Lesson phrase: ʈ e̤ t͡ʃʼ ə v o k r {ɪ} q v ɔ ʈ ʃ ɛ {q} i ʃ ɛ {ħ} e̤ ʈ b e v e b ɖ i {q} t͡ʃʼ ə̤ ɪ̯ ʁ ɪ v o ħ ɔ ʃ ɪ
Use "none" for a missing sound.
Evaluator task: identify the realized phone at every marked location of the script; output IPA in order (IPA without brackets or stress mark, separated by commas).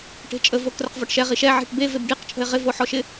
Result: ə, ʁ, ʕ, q